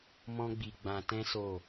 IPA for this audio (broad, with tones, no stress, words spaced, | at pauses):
mɔ̃˦ɡ͡bi˧ ɡ͡bã˧tɛ̃˦ so˦˨